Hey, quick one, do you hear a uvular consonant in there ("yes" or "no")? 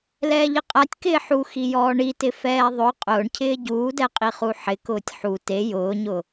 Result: yes